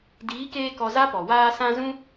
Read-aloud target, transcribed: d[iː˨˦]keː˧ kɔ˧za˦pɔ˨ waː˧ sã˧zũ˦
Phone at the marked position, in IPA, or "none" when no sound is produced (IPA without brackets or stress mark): iː˨˦